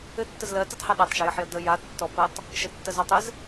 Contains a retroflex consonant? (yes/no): no